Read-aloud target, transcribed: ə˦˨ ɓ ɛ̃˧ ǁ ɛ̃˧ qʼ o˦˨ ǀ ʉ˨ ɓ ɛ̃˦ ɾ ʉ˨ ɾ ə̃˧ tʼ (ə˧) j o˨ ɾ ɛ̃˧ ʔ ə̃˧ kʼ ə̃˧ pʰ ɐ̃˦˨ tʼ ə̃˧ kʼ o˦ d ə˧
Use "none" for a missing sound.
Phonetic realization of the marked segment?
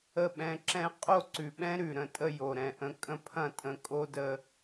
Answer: ə˦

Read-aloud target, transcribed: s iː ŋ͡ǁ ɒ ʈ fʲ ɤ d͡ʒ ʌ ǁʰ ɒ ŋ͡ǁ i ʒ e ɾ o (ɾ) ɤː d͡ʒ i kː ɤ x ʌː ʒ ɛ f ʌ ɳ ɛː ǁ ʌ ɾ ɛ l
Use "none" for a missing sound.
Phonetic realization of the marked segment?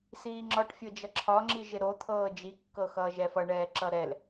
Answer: t̪ʰ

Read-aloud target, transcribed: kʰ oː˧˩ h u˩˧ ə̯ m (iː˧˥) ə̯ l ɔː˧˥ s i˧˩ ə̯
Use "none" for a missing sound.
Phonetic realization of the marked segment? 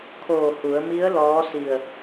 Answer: i˧˥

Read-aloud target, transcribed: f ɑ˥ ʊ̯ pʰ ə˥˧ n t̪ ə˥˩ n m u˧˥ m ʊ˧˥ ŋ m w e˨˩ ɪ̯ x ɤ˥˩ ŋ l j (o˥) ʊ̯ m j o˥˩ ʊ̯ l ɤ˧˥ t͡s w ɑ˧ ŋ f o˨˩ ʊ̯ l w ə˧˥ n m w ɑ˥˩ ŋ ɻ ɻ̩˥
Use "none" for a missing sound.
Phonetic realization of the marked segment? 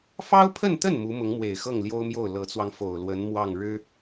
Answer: o˥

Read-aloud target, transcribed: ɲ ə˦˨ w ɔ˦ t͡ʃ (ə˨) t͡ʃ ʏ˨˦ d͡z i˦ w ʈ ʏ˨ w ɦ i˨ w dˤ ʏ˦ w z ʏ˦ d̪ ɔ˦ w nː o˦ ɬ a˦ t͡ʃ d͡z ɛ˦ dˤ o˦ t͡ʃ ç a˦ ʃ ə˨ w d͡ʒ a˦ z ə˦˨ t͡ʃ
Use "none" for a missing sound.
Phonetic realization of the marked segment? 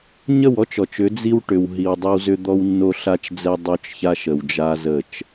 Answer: ɔ˨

